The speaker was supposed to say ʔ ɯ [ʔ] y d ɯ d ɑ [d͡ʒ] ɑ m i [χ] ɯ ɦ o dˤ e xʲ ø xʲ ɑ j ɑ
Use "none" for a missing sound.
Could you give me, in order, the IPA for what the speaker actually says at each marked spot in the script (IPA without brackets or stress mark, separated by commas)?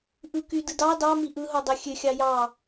k, d, ʔ